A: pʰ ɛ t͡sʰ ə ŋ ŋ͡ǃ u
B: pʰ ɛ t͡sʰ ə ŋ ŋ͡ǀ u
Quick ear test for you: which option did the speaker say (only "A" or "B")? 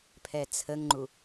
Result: A